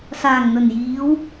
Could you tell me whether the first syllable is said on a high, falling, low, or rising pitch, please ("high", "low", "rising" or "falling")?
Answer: low